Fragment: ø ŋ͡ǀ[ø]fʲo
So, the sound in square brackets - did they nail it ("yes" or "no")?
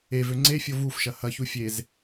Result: no